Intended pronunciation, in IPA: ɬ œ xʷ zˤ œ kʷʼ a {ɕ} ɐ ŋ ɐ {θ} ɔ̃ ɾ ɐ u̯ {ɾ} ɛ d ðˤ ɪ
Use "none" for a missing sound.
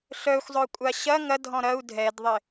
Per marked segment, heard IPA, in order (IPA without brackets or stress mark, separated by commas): ɕ, dʱ, dʱ